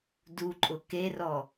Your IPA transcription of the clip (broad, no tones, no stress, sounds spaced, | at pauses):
d u ǃʼ ʊ k e r ɔ